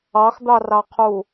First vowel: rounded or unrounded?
unrounded